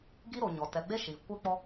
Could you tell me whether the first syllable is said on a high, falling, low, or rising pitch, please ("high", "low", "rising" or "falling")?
high